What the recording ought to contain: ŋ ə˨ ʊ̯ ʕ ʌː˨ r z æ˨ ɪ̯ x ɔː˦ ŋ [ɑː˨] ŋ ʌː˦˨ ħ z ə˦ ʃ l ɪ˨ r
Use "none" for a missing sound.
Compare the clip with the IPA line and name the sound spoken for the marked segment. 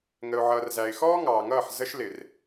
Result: ɑː˨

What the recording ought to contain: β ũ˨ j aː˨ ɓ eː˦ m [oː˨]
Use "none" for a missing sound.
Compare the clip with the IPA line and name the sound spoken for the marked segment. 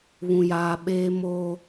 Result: oː˦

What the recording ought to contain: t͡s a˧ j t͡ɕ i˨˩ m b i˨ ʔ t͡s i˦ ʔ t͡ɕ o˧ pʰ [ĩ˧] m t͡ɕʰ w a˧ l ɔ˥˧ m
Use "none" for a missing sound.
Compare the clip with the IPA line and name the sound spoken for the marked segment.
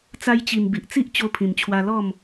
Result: ĩ˨˩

